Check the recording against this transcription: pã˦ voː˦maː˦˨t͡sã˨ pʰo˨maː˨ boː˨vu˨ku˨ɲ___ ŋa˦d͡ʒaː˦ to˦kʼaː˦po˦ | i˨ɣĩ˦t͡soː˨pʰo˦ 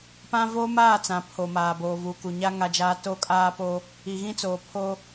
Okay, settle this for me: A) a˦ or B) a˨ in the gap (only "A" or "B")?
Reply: A